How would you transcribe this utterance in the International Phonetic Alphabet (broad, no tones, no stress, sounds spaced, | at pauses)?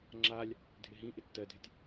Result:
ŋ͡ǁ a lʲ | dʱ ɪ ɦ ĩ ʔ ɪ tː ɜ dʱ ɪ tʲ